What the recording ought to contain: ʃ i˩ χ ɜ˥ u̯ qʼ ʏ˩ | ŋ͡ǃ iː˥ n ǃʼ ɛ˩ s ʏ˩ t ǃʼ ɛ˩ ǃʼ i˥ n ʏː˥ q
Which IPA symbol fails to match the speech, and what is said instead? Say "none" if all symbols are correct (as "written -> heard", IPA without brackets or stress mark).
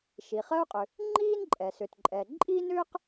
none